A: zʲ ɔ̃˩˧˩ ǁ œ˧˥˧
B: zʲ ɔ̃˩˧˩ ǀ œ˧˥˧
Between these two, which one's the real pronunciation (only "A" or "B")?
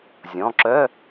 A